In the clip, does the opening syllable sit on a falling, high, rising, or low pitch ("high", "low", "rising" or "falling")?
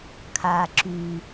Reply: low